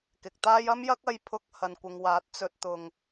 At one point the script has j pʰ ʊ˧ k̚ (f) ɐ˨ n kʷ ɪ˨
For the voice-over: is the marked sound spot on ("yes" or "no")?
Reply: no